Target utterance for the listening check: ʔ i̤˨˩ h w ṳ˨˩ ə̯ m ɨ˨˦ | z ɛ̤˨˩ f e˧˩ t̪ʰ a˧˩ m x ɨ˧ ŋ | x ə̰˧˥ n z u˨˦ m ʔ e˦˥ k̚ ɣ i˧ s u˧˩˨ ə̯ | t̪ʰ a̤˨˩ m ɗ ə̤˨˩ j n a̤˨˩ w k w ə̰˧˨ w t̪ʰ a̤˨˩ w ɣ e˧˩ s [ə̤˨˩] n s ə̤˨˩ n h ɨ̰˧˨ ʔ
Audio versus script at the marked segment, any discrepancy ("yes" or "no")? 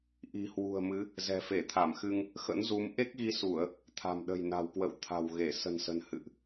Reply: no